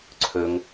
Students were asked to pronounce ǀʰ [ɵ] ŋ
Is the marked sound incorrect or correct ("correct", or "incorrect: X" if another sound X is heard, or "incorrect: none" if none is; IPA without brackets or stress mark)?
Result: correct